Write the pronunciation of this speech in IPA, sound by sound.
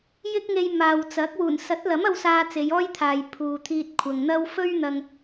j ɪ˥ k̚ ŋ e˧ j m aː˨ w t͡s ɐ˨˥ k̚ w uː˨˩ n s ɐ˨˥ t̚ l ɐ˨˥ m ɐ˧ w s aː˧ t͡s e˨˧ j ɔː˥ j t̪ʰ aː˨ j pʰ uː˨ t̪ʰ iː˧ t̚ kʷʰ ɐ˨ ŋ n̪ ɐ˥ w f ɵ˥ ɥ n̪ ɐ˧ ŋ

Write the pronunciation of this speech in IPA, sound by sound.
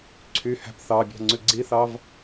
ǀʰ y h æ̤ p θ ɑ bʲ ɑ̤ ŋ͡ǀ ʉ ɡ͡ǀ i θ ɑ v

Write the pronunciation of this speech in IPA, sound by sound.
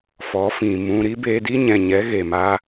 f ɔ˨˦ f ĩ˨ m ũ˧ ɾ i˦ b eː˧ d i˦ ɲ ɛ̃˨ ɲ ɛ˨˦ ɣ e˨ m aː˧

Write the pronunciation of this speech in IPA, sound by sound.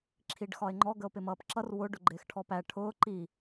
ǁʰ i ɖ x ɒ e̯ ŋ͡ǃ ɔ ɡ ə o̯ p ɪ m ʌː p ǁ ʌ r w ʊ ɖ ʊ ɡ͡ǃ ɪː x ʈʰ ɔ p æ ʈʰ ʊː ǃ i

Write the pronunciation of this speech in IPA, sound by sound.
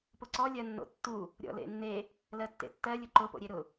p ʊ ǀ ɔ lʲ ɜ nː o̰ tː u | ɾʲ ɔ̰ l ḛ nː e | l ɜ tː ḛ tː ɜ lʲ ʊ ǃ ʊ p o̰ ɾʲ e ɾ ʊ

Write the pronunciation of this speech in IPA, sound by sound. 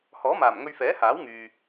h ɔː˨˥ m aː˨˩ m ŋ ɵ˧ ɥ f ɛː˨˥ h aː˨˥ w ŋ yː˨

